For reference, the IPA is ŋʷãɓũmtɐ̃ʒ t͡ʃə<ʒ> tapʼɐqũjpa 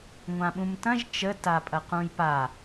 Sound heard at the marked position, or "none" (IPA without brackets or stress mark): none